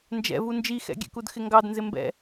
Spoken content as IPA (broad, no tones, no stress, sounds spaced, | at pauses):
n d͡ʒ ɛ̰ v u n d͡ʒ i x ɛ̰ ɡʲ ɛ̰ k u d x ɪ ŋ ɡ ɑ d n z ɪ m b ɛ̰